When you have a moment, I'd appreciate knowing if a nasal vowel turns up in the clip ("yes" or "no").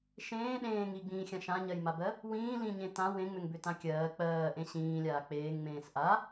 yes